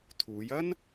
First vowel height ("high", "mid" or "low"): high